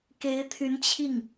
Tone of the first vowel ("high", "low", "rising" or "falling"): rising